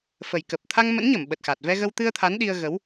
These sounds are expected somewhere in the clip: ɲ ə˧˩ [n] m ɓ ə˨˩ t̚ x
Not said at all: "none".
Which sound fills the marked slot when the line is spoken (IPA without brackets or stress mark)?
none